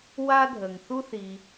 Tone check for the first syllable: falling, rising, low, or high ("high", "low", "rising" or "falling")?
high